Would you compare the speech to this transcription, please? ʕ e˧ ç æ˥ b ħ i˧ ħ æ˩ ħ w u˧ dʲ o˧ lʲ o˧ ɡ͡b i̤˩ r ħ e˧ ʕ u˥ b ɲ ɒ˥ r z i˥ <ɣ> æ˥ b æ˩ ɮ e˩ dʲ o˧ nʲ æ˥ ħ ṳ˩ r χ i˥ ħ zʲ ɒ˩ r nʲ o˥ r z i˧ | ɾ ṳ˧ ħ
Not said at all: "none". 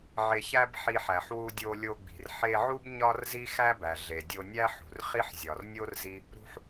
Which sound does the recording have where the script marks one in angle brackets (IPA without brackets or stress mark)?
x